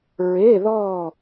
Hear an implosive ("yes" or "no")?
no